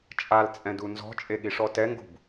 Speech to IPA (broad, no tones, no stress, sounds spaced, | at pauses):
t͡ʃʼ a l t͡sʼ ɛ̃ d u n z ɔ̤ t͡ʃʼ e ɠ i ʂ ɔ t ɛ ŋ ɡ ṳ b